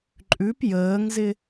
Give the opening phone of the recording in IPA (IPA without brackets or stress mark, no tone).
ǃʼ